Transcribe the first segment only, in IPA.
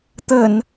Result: t̪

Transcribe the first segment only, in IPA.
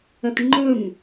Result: ə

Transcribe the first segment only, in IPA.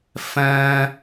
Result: f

